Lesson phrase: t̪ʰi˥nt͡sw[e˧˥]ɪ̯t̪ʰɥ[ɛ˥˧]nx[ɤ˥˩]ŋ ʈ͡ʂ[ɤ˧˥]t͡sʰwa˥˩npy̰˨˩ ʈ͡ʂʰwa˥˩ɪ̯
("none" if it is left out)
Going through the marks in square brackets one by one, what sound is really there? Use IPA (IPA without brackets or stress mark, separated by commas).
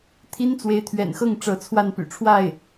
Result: e˧˥, ɛ̰˨˩, ɤ˥˩, ɤ˧˥